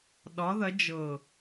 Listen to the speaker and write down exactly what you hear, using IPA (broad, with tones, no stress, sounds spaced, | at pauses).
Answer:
ɗ ɒ˨˥ ð ɐ˨˥ d͡ʒ ɤ˧˩